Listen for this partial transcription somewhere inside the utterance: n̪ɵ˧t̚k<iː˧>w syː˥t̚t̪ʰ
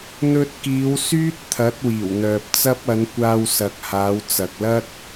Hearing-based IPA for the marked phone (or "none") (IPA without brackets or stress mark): iː˨˧